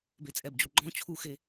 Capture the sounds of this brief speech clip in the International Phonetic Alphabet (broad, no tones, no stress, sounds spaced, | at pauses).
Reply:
b e t͡sʼ ɛ b d͡ʑ u ɡ͡ǃ ɔ̃ t͡ɕʰ u x e